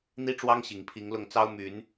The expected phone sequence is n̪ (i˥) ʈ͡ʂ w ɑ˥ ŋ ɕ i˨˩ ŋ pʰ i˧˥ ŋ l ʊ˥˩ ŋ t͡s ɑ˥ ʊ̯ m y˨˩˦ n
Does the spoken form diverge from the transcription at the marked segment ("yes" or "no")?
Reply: no